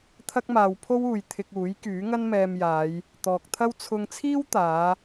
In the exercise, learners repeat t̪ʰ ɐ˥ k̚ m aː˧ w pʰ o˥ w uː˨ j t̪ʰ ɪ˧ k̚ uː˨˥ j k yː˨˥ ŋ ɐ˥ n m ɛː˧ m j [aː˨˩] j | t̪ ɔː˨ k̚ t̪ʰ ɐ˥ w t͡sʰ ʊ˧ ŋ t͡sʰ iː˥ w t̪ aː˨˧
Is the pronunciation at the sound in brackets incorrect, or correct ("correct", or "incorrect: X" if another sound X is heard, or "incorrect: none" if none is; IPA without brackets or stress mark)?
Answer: incorrect: aː˨˧